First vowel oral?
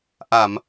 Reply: yes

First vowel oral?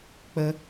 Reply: yes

